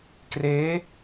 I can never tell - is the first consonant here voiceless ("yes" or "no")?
yes